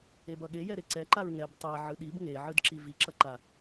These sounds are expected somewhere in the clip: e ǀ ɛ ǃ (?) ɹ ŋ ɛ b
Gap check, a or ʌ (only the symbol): a